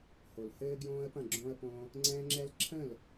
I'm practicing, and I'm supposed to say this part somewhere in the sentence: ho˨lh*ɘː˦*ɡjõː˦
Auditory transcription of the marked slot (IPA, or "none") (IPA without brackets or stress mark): ɘː˦